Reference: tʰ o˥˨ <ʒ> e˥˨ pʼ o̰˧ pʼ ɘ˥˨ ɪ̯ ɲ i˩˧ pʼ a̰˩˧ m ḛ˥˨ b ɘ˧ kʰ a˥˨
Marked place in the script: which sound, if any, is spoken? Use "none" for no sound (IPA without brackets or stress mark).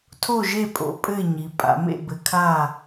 ʒ